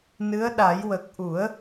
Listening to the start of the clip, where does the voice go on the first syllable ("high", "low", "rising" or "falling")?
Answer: rising